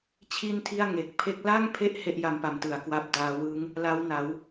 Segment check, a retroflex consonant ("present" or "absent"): absent